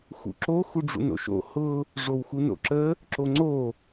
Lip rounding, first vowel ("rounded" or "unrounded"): rounded